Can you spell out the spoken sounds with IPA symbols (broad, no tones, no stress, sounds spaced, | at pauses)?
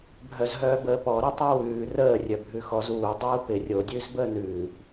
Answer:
bʱ œ z ɦ œː b əː p ɔ ɾ ə tˤ o w ʉː r əː rʲ œ bʱ ʉ x ɔ z uː dˤ uː p ɪ rʲ o dʲ ʉː z b əː n ʉː p